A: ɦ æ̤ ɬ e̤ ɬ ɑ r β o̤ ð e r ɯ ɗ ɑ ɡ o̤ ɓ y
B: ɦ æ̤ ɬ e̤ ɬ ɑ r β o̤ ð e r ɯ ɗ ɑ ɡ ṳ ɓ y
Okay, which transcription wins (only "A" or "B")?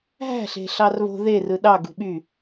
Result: B